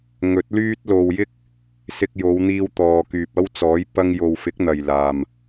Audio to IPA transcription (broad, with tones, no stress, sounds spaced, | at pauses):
ŋ ɵ˨˥ t̚ l yː˥ t̚ l o˧ w j ɪ˥ k̚ | s ɪ˧ k̚ j o˨˧ w n̪ iː˧ w t̪ ɔː˨ k yː˨ p̚ ɐ˥ w t͡s ɔː˨˥ j p ɐ˧ ŋ j o˨ w f ɪ˨˥ k̚ n̪ ɐ˨ j l aː˨ m